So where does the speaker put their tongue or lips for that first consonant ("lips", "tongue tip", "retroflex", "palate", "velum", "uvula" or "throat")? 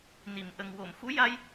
tongue tip